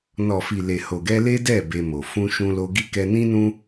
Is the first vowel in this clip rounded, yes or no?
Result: yes